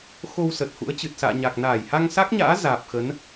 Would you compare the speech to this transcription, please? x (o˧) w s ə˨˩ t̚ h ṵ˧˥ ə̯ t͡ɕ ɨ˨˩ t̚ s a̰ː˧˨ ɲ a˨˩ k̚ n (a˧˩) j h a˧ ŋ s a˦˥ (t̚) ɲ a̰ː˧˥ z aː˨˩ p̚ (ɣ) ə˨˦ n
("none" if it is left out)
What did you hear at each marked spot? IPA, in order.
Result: o˧, aː˧˩, k̚, x

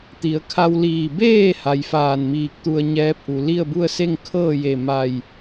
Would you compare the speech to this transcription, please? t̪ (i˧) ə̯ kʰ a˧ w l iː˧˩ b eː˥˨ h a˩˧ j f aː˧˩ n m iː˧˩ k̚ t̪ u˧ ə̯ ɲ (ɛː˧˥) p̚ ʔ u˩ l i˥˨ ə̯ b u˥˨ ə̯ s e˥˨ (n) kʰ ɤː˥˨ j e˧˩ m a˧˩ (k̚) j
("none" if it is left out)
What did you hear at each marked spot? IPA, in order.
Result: i˩˧, ɛː˧˥, ŋ, none

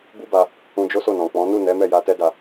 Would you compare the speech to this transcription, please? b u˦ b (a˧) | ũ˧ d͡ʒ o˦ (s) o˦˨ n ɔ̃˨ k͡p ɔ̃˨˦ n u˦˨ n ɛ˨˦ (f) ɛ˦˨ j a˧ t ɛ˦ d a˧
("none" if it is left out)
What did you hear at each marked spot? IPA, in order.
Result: a˧, s, m

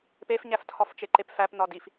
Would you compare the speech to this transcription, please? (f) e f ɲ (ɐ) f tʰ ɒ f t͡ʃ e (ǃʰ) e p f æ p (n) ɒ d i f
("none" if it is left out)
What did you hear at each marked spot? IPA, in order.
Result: p, æ, ǃ, n

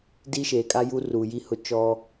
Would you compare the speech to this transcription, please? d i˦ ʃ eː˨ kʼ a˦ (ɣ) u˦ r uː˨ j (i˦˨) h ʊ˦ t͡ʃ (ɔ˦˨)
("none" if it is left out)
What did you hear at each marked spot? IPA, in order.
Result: j, i˦˨, ɔ˦

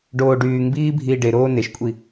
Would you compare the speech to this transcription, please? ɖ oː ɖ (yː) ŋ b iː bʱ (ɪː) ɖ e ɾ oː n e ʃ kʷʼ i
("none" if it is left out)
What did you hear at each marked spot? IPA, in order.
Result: yː, iː

